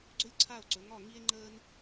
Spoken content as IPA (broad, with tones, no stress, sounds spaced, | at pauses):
ɡ͡ǀ ɵ˥ lʲ ǀʰ a˥˨ o̯ ǀ ɵ˨˥ ŋ ɒ˥˨ ŋ i˥ e̯ ŋ͡ǃ əː˥ n